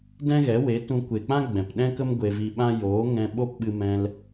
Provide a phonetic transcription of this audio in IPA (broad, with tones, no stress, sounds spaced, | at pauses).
d ɛ̃˦ ɣ ɛ˨˦ w e˨˦ t ũ˧ kʷ e˨ k͡p ã˦ ɡ͡b ɛ̃˨ p ɗ ɛ̃˦ k ə˦ m ɡʷ e˧ v i˧ ɓ ã˦ j oː˨˦ ŋ ɛ̃˧ ɓ o˦ p ɓ ɨ˧ m ɛ̃˧ l